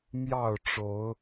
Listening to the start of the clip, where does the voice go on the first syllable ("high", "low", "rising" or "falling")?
falling